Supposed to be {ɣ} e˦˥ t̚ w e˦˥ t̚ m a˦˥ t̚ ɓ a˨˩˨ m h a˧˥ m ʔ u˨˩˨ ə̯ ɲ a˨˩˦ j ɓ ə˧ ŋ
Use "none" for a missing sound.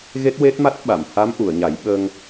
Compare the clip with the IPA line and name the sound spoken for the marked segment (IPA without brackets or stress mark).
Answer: ɣ